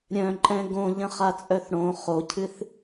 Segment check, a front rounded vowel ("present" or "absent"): present